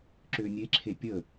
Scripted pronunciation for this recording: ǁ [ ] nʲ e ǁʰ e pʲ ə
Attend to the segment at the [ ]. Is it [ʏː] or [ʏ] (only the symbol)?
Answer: ʏː